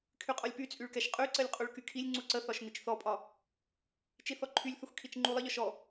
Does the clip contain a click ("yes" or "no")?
yes